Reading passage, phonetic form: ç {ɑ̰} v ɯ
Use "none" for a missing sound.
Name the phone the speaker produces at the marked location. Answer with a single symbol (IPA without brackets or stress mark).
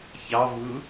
ɑ